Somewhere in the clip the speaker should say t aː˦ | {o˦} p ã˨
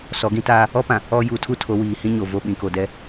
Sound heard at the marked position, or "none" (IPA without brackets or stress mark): ɔ˦